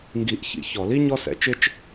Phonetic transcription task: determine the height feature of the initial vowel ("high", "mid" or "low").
high